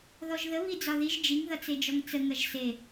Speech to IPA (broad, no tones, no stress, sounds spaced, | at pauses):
ð ɔ ʒ ð ə β i d͡z ɒ ð i ʒ d͡ʒ i ŋ ð ʌ t͡s e d͡ʒ ɔ ŋ t͡s ə ŋ ɐ ʒ s e